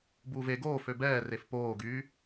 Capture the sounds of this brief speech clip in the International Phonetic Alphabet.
buːve ɡoː føbɛː refpoːɡyː

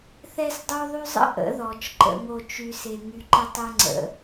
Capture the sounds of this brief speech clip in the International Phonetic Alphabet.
θɛ˦sdˤo˦ðˤy˦zˤə̰˦ ʔə̰˨˦ðɔ˨t͡ʃǃə̰˧ŋo˧ t͡ʃy˦se˧ ŋy˧ǃə˦ tˤɛ˦ŋ͡ǀə̰˨˦

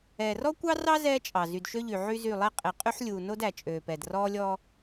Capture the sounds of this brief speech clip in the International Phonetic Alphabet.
ɛː˨rɔ˦kʷɑ˦ rɑ˦ zɛː˦t͡ʃʼɑ˨ zy˨dʃø˦ʎy˨ ʕy˦zy˦˨ lˠɛ˦qʼe˨ qʼy˦ħlʲuː˨no˦d æ˨t͡ʃʼøː˨pɛ˨d rɔː˦lʲɔː˦

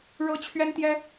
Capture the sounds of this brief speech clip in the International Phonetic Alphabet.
ɻɤ˥t͡ɕʰɥɛ˥nt̪jɛ˥

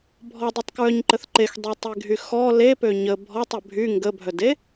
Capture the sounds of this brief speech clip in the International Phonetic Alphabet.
bʱɔdˤœtˤkɹœɲǃəθ ǃexdˤetˤeɡʱy xɔ lepø ɲə bʱɔtˤə bʱy ŋɡəbʱœde

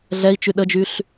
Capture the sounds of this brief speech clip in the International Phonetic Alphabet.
ɮɛi̯t͡ʃy ɗəd͡ʒyɬ

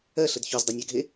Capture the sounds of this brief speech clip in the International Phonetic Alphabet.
ɜɬəd çozdˤɐnʲaɡʱe

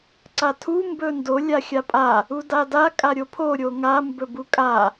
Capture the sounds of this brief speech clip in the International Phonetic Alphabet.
ǀatʰu mbɵndo lʲaxʲapʼa | udada kʼaɾʲopʰo ɾʲoŋa mbɵbukʼa

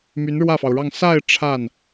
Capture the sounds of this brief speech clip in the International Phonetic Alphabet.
my˧˥nɻwä˥˩fɑ˩ʊ̯ɻɑ˥˧ŋ sa˥˧ɪ̯ ʈ͡ʂʰa˥˩n

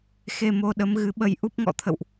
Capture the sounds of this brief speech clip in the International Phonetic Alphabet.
xe˧mo˧ɗə˨˦m ɣɨ˨˦ɓə˧j ʔu˦˥p̚ŋɔ̰˧˨ t̪ʰə̰˧˨wʔ

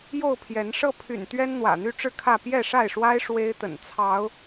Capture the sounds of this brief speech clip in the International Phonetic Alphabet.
jo˥˨ʊ̯pʰjɛ˨˦n ʂɤ˥˨pʰy̰˨˩nt̪ɥɛ˦n n̪wä̰˨˩n̪y˦ʈ͡ʂɻ̩˥˨kʰä˥˨ pjɛ˥˨ʂa˥˨ɪ̯ʂwa˦ɪ̯ ʂwe˦ɪ̯t̪ə̰˨˩nt͡sʰɑ˨˦ʊ̯

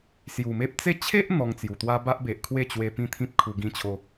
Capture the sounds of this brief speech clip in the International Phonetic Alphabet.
sju˨˩me˦p̚ t͡se˥˧ t͡ɕʰe˦ʔ n̪ɔ˧ŋt͡sju˨˩t̪wa˦ ba˦ʔbe˨ʔkʰwe˥˧t͡ɕwe˧ pĩ˦t̪ʰĩ˦p̚kʰu˧ ɡĩ˦t͡ɕʰo˦

